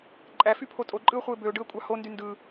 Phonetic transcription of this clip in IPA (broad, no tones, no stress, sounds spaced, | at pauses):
ǃʼ æ f y pʰ o tʼ o ǃʼ ɯ ʊ̯ χʷ ɯ ɪ̯ b ø ʊ̯ ɖ ɯ ə̯ kʷʼ ɑ h o n d y n d ɯ